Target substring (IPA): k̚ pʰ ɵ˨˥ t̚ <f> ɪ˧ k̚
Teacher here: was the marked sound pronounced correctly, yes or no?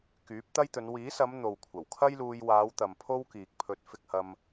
yes